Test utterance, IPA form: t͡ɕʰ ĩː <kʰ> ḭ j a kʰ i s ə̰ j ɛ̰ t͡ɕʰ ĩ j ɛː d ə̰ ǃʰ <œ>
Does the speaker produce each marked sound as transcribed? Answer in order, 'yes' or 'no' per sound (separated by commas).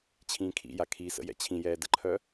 yes, yes